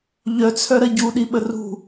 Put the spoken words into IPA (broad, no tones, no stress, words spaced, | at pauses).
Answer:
ʎœt͡sʰœɾɐ ɟuɗi ɓərṳ